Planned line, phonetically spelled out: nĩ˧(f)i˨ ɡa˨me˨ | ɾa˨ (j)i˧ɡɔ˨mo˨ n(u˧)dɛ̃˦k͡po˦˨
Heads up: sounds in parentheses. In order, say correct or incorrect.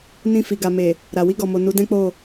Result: correct, incorrect, incorrect

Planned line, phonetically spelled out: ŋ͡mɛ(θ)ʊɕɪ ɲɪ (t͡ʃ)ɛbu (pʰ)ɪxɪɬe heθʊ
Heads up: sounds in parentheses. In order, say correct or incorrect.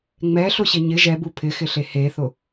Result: incorrect, incorrect, correct

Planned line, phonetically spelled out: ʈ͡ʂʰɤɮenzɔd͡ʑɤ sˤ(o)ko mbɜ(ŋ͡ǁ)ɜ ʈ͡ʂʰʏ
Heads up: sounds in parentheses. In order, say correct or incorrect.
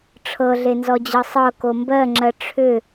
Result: incorrect, correct

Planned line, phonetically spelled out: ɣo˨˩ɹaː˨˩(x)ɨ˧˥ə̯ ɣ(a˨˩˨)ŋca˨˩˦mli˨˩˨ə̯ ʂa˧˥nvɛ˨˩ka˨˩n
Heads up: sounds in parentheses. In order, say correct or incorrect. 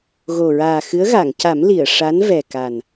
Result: correct, correct

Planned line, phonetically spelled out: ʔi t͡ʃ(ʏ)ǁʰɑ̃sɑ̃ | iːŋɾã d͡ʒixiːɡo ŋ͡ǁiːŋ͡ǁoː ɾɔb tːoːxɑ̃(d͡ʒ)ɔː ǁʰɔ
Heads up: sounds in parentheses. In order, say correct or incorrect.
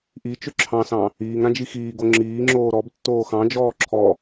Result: correct, correct

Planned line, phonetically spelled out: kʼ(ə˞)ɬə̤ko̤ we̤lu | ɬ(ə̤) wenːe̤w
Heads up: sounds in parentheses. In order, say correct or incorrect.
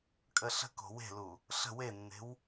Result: incorrect, correct

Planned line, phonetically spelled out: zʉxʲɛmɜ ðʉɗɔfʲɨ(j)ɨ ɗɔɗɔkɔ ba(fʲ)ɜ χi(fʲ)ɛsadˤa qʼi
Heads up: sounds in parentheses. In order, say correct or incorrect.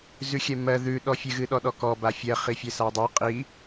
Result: incorrect, correct, correct

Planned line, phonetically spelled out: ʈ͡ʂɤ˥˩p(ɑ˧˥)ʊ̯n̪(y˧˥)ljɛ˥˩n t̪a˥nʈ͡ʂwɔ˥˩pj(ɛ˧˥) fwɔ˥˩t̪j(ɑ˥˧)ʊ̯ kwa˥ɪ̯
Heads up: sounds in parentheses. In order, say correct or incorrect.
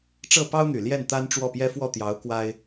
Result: incorrect, incorrect, incorrect, incorrect

